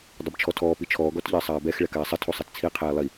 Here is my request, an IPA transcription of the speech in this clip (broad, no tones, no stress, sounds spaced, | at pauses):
dˤ ɪ b t͡ʃʰ ɔ tʰ ɔː p i t͡ʃʰ ɔː ɡ ɔ t ʎ ɪː sˤ aː b ɛ x ɭ ɛ k aː sˤ ɪ tʰ u sˤ e t t͡sʰ i qʰ ɛː lˠ i